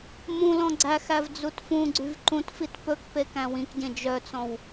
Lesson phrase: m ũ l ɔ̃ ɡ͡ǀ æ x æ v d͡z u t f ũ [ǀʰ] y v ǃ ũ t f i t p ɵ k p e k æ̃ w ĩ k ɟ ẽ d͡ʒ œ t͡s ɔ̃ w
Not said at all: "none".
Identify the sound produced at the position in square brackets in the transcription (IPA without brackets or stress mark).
ɡ͡ǀ